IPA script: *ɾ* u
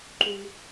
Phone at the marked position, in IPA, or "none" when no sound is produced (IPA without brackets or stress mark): ǃ